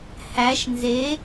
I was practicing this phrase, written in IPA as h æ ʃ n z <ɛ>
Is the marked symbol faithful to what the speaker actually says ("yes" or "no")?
no